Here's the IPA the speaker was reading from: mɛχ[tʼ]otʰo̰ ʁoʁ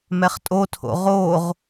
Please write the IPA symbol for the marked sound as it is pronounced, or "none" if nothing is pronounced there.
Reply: tʼ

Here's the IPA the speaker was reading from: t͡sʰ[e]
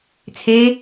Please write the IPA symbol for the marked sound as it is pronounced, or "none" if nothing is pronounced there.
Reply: e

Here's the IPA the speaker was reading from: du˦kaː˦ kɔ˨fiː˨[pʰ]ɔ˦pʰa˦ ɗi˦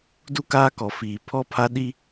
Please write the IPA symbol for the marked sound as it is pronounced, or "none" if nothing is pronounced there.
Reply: pʰ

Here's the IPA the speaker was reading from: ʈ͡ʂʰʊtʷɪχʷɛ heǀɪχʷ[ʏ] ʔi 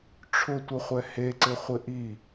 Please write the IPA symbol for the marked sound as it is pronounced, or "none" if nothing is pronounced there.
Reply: ɪ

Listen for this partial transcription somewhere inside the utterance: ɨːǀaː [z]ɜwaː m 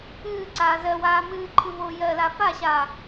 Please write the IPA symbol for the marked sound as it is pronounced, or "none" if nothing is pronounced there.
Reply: z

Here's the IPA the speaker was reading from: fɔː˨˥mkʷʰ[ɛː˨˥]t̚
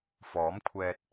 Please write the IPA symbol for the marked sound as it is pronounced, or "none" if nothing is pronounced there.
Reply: ɛː˧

